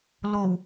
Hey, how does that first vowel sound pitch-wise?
low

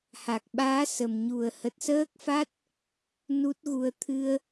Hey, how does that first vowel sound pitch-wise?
low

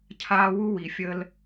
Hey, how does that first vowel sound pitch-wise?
high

